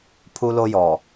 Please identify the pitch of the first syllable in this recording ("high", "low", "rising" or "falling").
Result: high